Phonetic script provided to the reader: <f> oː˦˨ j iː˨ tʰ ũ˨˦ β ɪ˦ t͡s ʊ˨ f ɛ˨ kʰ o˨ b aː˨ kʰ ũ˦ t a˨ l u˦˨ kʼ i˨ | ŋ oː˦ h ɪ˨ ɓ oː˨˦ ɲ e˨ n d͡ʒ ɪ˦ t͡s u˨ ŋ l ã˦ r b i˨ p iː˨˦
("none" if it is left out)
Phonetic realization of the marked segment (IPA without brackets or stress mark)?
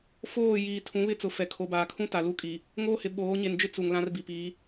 f